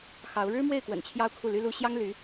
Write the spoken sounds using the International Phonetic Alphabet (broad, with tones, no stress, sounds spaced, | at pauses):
x ɑ˧˥ ʊ̯ ɻ ɻ̩˥ m w e˥˩ ɪ̯ k w ə̰˨˩ n t͡ɕʰ j ɑ˥ ʊ̯ kʰ u˥˩ l y˥ l u˥ ɕ j ɑ˥ ŋ l y˧˥